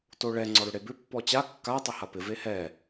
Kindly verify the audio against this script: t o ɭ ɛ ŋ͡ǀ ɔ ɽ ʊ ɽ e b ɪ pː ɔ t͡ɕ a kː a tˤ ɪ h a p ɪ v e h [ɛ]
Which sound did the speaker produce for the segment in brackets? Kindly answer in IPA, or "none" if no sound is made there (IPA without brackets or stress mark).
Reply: ɛ